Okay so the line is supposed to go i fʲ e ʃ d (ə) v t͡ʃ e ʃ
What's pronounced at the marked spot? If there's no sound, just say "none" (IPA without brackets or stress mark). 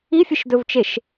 ɵ